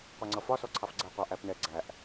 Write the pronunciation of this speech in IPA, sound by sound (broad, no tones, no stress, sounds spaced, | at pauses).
qʷ ɜ ŋ͡ǀ ʌ f ɒ s ɔ ǀʰ ɑ f ɡ͡ǀ ɛ qʷ ɑ ʔ æ p n ɛ ɡ͡ǀ æ ʔ